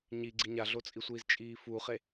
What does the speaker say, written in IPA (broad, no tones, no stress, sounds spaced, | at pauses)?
ɲ i ɡ͡ǀ i ɲ a ɮ o t͡sʼ i sʷ iː z t͡ʃʼ iː f u χ e